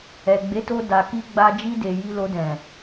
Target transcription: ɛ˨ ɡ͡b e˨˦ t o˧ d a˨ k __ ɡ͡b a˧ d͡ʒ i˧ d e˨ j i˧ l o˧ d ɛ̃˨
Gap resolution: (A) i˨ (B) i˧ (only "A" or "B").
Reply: B